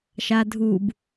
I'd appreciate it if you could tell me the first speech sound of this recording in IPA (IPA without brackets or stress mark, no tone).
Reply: ʃ